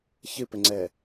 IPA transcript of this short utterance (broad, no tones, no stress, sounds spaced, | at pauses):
ç ɨ p ɘ ŋ͡ǀ ɛ